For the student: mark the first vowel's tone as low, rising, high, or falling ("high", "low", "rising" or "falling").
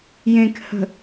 low